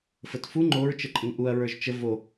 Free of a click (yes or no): no